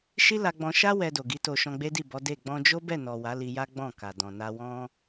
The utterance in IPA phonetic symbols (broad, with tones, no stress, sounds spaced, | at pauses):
ʃ i˦ l a˧ ɡ͡b ɔ̃˧ ʃ a˦ w ɛ˧ d o˨ ɡ i˨˦ t o˧ ʃ ɔ̃˧ ɡ͡b e˦ d i˦˨ b ɔ˨˦ d e˦˨ ɡ͡b ɔ̃˧ d͡ʒ o˦ b ɛ˦˨ n ɔ˨ w a˨˦ l i˧ j a˦ ɡ͡b ɔ̃˦˨ k a˨ d ɔ̃˨ n a˧ w ɔ̃˦